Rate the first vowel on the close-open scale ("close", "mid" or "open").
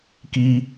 close